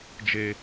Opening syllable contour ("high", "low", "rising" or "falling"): high